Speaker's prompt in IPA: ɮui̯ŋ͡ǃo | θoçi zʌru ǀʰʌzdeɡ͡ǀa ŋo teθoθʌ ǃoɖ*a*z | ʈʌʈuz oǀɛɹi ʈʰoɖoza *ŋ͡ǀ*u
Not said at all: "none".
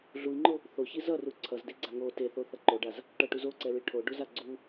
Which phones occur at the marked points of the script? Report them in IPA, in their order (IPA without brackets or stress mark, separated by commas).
a, ɡ͡ǀ